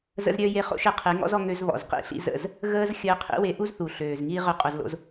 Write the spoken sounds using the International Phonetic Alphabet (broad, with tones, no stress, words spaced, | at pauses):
zə̰˧zɾʲœ˧ je˧χo̰˦ʃɛ˧ qʰe˨˦ŋɔ̰˦zɔ˧ ŋø˧zβɔ̰˨z qḭ˧ɬḭ˧zə̰˦˨z | ɣəː˧z xʲəː˧qʰḭ˦ we˧ʔu˦zθu˨ ɬøː˨zŋiː˦ ʁœ˦˨qʼo˧z lo̰˦z